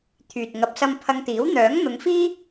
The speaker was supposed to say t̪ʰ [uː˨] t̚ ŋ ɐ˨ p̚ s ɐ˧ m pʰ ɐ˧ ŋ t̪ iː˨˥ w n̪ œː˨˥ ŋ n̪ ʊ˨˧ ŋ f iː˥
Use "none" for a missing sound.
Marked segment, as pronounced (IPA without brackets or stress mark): yː˨